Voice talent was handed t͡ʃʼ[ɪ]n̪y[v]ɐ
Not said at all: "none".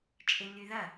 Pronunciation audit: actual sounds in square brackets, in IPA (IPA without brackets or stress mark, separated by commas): ɪ, ð